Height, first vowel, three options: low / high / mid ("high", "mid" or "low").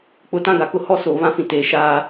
high